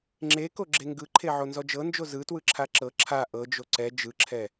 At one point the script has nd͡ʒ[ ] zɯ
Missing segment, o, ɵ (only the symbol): o